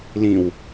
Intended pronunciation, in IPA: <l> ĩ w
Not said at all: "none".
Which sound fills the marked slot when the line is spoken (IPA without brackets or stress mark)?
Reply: l